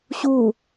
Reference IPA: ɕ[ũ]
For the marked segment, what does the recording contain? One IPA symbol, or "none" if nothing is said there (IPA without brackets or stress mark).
u